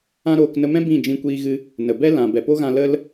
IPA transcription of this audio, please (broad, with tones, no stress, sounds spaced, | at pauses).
ã˦ ɾ oː˧ k n ə˧ m ɛ̃˦ b ĩ˦˨ d͡ʒ ĩ˧ kʷ iː˧ ɣ ɨ˧ | n ə˨ b ɛ˦ l ã˨ b ɛ˨ p o˦ ɣ ã˧ l ə˦ l